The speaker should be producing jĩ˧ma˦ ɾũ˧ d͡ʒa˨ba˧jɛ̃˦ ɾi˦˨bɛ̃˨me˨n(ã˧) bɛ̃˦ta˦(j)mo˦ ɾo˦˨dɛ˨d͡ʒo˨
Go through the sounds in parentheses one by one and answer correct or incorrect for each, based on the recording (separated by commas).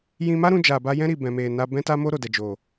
incorrect, incorrect